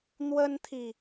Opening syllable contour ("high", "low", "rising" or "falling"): high